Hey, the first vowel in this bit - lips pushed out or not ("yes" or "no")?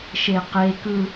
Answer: no